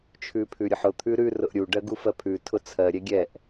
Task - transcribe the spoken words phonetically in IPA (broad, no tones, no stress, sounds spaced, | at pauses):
t͡ʃʰ ʉ pʰ ʉ ɾʲ ʊ ħ ʊ t̪ʰ ʉ ɾ ʉ r ʊ ʔ ɾʲ u ɖ ɜ ɡ u f ɜ pʰ ʉ tʰ ʊ t͡sʰ ɜ ɾʲ ɛ ɡʲ ɛ ʔ